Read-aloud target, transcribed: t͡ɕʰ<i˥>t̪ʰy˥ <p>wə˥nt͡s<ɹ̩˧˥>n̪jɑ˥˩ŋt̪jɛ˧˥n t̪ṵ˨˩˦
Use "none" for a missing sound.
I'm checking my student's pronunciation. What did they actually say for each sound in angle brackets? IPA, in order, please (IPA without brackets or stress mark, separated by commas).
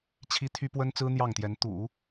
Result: i˥, p, ɹ̩˥